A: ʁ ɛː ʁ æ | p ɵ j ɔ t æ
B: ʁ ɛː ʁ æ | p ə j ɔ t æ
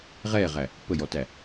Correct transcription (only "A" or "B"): B